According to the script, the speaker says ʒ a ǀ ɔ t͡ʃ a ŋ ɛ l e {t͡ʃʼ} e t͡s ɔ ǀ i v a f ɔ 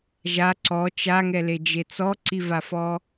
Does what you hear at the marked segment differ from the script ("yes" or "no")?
yes